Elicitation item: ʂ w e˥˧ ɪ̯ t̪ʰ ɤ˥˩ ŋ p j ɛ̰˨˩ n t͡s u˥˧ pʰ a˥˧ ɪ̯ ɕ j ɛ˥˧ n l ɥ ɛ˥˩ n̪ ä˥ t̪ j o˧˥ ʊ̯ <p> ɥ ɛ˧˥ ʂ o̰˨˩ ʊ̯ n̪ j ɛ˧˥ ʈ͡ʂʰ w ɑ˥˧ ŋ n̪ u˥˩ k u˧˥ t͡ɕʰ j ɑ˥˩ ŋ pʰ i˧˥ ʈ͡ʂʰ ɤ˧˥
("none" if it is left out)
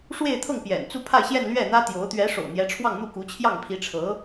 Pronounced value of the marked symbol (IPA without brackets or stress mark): t̪